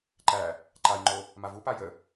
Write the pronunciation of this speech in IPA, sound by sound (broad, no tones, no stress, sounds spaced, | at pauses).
ǃ æ | ǃ a j ŋ͡ǃ o | m a v u p a j ə